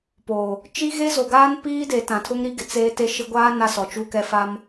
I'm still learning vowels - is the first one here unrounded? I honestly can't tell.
no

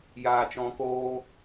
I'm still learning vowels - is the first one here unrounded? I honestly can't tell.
yes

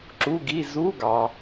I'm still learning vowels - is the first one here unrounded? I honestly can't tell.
no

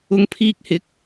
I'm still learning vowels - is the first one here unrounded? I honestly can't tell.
no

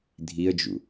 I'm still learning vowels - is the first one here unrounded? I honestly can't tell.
yes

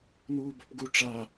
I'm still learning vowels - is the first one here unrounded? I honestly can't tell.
no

